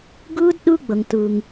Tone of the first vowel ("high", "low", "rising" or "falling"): high